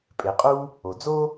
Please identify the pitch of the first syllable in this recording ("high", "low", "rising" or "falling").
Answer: low